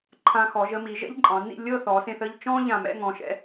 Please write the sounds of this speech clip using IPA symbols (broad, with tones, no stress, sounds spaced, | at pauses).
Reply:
ǃʰ ã˧ x ɔ˩˧ ʒ ə˥˧ m i˩˧ ʒ ɛ̰˥ ʎ ǃʼ ɑ̃˩˧ n ḭ˥˧ lʲ ɤ˥˧ θ ɔ˩˧ s ẽ˧ θ ə˥˧ ʎ t͡ʃ ɔ̃˥ ʎ ã˧˩ m ɛ̰˥˧ ŋ ɔ̃˩˧ ʃ ɛ̰˧